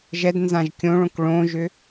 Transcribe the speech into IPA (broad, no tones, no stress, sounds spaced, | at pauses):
ʒ ɛ d n z ã ʒ kʲ õ ɭ õ k ɭ õ ʒ ʏ